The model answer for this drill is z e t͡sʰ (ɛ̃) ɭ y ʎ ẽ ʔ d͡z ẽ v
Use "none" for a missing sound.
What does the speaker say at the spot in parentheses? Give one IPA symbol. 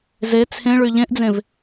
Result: ẽ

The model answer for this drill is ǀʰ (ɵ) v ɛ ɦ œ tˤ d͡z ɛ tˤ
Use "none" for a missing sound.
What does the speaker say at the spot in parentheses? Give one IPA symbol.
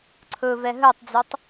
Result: ɵ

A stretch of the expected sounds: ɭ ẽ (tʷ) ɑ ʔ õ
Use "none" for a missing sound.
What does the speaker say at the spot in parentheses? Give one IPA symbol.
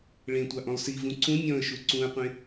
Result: tʷ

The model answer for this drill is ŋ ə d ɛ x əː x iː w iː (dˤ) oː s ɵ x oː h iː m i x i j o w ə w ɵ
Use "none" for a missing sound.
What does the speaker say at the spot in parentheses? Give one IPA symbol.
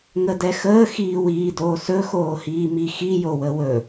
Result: d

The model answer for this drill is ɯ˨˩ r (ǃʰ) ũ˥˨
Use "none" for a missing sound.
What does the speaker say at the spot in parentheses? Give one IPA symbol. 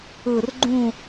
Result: ɡ͡ǃ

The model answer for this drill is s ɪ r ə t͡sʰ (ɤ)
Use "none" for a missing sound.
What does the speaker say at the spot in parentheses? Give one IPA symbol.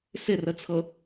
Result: ɤ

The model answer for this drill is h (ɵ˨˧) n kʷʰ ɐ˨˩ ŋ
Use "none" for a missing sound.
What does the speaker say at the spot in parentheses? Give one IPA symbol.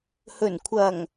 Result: ɵ˨˩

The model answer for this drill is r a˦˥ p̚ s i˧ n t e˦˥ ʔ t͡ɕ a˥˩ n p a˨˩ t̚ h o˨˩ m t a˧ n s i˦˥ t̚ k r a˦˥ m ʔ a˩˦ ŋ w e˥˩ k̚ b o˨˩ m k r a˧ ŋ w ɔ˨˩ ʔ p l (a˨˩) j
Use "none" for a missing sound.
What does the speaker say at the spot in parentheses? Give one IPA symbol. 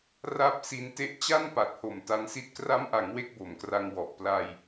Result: a˧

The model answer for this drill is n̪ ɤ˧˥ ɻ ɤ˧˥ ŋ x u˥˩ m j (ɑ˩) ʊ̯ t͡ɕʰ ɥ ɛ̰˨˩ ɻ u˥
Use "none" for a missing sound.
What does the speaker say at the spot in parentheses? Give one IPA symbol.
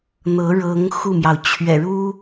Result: ɑ˩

